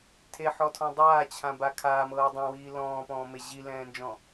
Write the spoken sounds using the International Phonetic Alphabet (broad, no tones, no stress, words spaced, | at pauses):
tʰeħɔtʰɔ̃ dˤaːt͡ɕʰãba kʰaːmɤː dˤɛ̃wiː lɔ̃ːpɔ̃ːme ʑilɛ̃ːnd͡ʒɔ̃